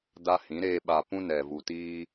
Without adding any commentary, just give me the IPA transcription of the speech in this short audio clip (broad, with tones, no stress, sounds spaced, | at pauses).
d a˦ h ĩ˨˦ ɾ eː˨ ɓ a˨ p ũ˦ n ɛ˨ v u˨ t iː˦